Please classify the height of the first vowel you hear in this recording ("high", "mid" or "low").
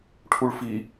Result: high